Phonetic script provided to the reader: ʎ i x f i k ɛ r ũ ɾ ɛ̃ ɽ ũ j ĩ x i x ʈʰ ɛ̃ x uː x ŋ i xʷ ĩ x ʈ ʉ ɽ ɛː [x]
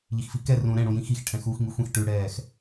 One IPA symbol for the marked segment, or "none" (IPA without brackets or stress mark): x